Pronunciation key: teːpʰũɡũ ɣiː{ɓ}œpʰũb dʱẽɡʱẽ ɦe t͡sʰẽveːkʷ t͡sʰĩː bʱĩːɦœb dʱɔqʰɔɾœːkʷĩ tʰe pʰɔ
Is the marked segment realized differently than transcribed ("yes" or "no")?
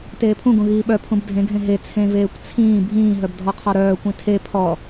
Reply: no